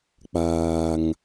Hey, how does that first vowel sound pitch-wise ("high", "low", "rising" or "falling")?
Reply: low